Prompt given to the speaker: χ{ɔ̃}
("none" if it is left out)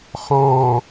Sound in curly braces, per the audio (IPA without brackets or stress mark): ɔ̃